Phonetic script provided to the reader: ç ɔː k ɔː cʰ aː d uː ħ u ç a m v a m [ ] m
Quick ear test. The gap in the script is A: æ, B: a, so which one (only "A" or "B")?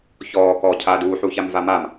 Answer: B